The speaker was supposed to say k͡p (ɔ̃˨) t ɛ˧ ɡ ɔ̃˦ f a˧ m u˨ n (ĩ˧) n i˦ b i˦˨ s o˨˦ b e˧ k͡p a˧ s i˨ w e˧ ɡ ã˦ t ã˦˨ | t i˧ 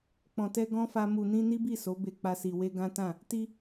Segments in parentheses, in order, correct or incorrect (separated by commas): correct, correct